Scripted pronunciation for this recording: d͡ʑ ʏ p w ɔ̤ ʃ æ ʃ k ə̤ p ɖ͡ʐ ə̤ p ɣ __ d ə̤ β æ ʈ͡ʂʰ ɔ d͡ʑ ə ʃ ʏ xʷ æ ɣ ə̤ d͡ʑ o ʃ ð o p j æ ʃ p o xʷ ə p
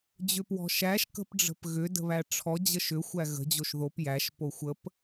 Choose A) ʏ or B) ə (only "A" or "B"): A